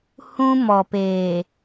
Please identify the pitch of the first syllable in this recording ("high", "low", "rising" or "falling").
high